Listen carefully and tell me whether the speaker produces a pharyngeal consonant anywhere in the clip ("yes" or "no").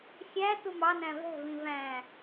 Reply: no